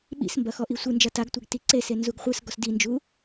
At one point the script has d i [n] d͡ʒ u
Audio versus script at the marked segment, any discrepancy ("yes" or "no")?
no